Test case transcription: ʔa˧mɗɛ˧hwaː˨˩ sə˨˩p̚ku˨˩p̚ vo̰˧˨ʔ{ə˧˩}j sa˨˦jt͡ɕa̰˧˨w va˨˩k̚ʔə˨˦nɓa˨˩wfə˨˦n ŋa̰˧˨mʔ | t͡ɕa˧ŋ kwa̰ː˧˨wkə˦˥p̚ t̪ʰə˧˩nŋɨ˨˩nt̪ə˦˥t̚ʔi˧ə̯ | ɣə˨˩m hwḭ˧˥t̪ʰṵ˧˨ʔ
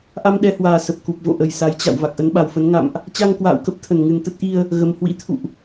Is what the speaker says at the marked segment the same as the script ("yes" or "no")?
yes